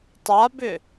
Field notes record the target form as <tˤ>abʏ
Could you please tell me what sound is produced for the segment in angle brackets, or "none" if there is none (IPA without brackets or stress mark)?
tˤ